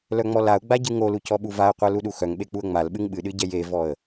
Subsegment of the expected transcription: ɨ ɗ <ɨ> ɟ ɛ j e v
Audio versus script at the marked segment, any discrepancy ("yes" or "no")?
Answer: no